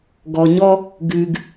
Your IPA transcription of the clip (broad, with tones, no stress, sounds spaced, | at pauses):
ɡ ɔ˨ ɲ ɔ˦ | ɡ ʉ˨ ɡ